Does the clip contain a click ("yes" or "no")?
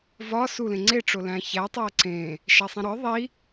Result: yes